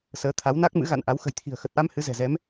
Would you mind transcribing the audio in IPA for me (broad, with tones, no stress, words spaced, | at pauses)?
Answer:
səː˨˦t̪ʰa˨˦wna˦˥k̚mɨ̰˧˥ ɣa̰˧˨nʔa˨˦w xə̤˨˩jt̪ʰi̤˨˩ə̯xə˨˩t̚ʔa˧m hɨ˨˦zɛ̤˨˩zɛ˨˦m